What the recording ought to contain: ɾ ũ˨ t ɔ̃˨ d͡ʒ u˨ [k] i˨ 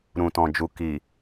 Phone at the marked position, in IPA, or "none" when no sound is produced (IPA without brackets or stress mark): k